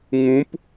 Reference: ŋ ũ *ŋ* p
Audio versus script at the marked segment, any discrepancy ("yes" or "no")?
yes